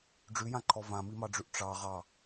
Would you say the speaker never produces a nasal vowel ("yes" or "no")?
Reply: no